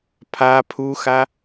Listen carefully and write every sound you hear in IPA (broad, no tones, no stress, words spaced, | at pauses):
pʰa pʰuxa